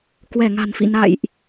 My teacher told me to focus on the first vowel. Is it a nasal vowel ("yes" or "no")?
no